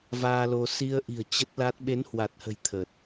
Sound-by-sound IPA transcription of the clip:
v aː˧ l o˧ s i˧ ə̯ ʔ i̤˨˩ ə̯ t͡ɕ ə˦˥ t̚ l a˦˥ t̚ ɓ e˨˦ n h w a˨˩ t̚ h ə̤˨˩ j t̪ʰ əː˨˩ t̚

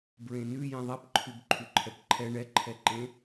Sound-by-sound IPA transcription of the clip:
b ɹ ẽ n ʉ j ẽ ðˤ ɛ p ǃʰ ʉ b ǃʰ ʉ ǃʰ ɛ p ǃʰ ɛ ɳ ɛ ǃʰ ɛ ǃ ẽ

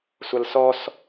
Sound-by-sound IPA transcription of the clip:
sʷ ʌ l s ɔ s

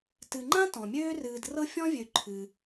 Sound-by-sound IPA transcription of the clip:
t ɨ˨ ŋ͡ǃ ã˥ t ɔ̃˩ mʲ øː˥ r ɨː˨ d r ɤ˦ fʲ ɔ̃˥ vʲ ø˨ ǃʰ ɨ˩

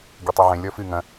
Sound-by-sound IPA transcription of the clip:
ɡʲ ɛ tˤ u ʕ ẽ lʲ ɔ f ɨ ŋ ɐ̃

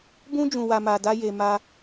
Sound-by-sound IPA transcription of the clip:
b ũ˦ d͡ʒ ũ˧ w a˧ m a˧ d a˦ j e˧ m a˧

